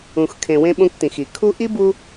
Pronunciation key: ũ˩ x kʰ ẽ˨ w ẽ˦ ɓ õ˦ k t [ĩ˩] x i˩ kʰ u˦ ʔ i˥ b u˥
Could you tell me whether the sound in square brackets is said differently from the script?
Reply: no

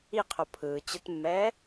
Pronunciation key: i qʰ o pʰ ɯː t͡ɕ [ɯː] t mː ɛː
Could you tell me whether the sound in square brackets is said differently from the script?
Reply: yes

